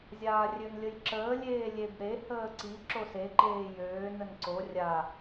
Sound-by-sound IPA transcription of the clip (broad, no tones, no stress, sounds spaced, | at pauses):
zʲ aː rʲ ø n lʲ ə j ǁ əː lʲ eː lʲ e b ɾ e h əː ǀ i ǁ o s e ǃ eː j øː n ə n ǀ o rʲ a